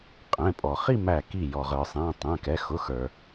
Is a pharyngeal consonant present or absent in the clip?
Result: absent